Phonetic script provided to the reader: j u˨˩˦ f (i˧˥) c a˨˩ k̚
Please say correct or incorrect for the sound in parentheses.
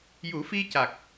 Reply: incorrect